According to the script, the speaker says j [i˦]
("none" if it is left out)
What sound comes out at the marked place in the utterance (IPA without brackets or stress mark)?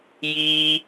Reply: i˦